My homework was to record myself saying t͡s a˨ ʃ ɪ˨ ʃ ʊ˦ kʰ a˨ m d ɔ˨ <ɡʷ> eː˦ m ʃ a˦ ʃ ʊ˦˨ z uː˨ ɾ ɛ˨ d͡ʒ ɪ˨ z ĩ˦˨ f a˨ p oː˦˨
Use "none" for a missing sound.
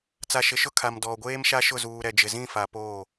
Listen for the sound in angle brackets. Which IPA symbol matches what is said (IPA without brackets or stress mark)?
ɡʷ